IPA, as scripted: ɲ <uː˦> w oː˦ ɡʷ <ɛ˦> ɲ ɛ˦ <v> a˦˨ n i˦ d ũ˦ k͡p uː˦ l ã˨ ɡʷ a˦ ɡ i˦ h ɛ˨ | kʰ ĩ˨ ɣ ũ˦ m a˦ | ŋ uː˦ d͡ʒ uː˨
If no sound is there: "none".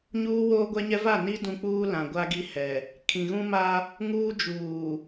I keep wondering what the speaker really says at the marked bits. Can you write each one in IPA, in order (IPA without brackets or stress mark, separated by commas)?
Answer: uː˦, ɛ˦, v